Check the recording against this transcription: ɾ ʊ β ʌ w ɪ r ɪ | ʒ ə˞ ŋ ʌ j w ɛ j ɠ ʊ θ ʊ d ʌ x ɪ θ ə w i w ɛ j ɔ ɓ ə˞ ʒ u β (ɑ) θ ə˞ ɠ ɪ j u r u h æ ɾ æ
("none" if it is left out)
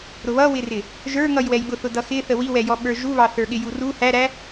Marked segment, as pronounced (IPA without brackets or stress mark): ɑ